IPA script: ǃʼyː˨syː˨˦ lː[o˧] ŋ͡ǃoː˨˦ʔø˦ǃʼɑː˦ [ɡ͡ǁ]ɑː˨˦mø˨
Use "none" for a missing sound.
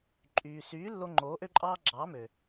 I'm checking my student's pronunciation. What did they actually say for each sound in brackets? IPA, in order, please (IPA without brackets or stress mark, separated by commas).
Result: o˧, ɡ͡ǁ